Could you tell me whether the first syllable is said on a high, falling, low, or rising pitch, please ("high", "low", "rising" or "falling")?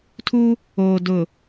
high